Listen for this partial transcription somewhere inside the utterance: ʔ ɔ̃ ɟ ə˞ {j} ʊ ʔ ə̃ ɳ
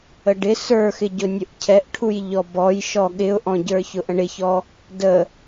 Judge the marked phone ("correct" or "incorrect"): incorrect